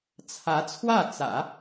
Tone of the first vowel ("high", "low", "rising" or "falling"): rising